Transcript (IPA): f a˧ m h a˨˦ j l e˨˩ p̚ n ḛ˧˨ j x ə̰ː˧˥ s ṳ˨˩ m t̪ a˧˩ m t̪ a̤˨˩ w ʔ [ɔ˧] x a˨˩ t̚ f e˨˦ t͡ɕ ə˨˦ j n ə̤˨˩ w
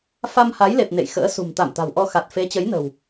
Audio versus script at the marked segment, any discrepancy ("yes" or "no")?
no